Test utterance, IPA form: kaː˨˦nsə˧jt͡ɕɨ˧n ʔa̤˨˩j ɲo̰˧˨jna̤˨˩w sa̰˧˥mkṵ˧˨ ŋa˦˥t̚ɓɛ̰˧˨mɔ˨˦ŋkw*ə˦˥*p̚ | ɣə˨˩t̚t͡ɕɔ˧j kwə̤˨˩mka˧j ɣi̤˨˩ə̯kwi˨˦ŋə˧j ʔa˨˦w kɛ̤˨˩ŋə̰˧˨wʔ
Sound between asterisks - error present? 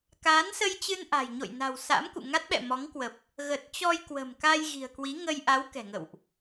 yes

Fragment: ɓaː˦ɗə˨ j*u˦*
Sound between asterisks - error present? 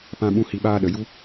no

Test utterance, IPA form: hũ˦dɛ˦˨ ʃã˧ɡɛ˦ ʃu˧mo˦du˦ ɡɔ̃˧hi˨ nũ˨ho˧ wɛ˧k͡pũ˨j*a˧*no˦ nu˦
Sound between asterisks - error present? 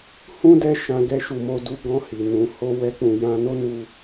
yes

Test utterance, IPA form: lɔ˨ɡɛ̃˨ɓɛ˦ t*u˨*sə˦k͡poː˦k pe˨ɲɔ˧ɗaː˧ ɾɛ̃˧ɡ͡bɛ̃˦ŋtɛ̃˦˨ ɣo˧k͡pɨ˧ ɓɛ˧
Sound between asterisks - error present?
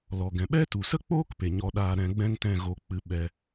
no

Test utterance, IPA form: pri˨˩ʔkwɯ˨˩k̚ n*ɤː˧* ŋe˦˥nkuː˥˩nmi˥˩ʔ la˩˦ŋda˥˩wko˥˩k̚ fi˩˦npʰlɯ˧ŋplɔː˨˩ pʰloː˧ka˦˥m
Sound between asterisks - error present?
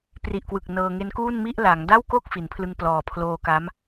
no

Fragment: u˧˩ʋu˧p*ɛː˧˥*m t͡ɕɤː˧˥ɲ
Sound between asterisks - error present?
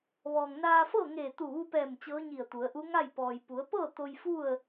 yes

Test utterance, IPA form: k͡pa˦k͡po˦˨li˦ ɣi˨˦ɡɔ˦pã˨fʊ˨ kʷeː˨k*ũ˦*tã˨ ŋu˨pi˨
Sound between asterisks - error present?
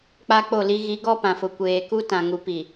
yes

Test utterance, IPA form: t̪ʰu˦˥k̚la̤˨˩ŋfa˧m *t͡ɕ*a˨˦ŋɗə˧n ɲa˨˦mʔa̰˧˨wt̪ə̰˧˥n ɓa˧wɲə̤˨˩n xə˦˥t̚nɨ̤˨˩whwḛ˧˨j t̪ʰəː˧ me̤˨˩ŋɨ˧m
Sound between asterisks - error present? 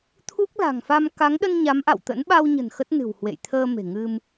yes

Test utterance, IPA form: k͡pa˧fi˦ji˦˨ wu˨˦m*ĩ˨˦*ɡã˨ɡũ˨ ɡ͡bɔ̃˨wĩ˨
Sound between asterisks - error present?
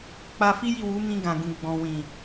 yes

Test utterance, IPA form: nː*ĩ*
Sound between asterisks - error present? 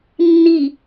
yes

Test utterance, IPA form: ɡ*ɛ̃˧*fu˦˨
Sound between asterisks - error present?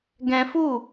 no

